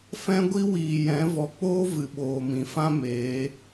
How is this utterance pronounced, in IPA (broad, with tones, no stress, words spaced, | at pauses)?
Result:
fɛ̃˦ɡʷi˦wiː˨jɛ̃˨˦ vɔ˨k͡poː˦ vɨ˨ɓoː˨mĩ˨fã˦ meː˨˦